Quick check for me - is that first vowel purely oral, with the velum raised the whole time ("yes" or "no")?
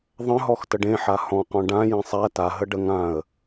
no